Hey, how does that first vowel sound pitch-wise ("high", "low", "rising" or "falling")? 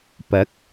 rising